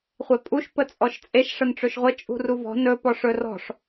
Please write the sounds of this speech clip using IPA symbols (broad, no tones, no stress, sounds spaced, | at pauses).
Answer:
χʷ e pʼ u ʃ p ə t͡sʼ ɔ ʃ t͡sʼ e ʃ ʂ ə n ʈ͡ʂ ɵ ʃ ʁʷ ə t͡ʃʼ ṳ r u v ɔ̤ n ɵ p ɔ ʂ ɵ r ɔ̤ ʂ